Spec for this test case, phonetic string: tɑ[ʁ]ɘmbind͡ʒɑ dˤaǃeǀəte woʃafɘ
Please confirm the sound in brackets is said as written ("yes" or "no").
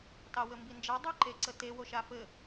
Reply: no